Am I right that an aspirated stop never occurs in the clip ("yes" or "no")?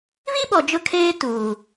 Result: no